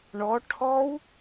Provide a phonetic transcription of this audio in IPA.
ɳ ɔ ʈʰ ɔ w

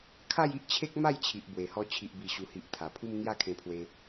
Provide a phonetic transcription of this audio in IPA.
kʰ a˥˧ j i˦ ʔ t͡ɕʰ e˦ k̚ m a˥˧ j t͡ɕʰ i˨ ʔ b w e˨˩ h ɔ˧ t͡ɕʰ i˨ ʔ b i˨˩ ɕ u˨˩ h i˨ ʔ t̪ʰ a˨˩ pʰ u˦ m ŋ j a˦ kʰ ẽ˧ pʰ w e˧

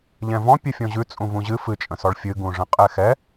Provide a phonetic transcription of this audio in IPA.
ʎ ɛ̃ v ɔ̃ pʲ ɨ fʲ ɔ̃ ʑ ʉ t͡sʼ ũ v ũ ʑ ɨ f ɨ t͡ʃʼ ə̃ s ɔ ɭ fʲ ɨ ɡ ũ ʐ ə̃ qʼ ɛ x ɛ

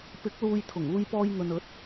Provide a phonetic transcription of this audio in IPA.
p ɪ˨˥ k̚ l uː˧ j t̪ʰ ʊ˨˩ ŋ uː˧ j p ɔː˧ j ŋ ɵ˨ n ɵ˨˥ t̚

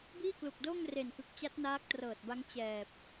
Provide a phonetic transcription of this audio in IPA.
b iː˥˩ k l u˨˩ k̚ d oː˥˩ ŋ r e˨˩ n k ɯ˨˩ k̚ t͡ɕ a˦˥ t̚ n aː˦˥ k̚ t r ɤː˨˩ t̚ b a˦˥ ŋ t͡ɕ ɛː˨˩ p̚

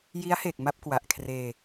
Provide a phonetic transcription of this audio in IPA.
j i˦˥ a̯ h e˨˩ k̚ m a˥˩ p̚ k w a˨˩ ʔ kʰ r eː˧

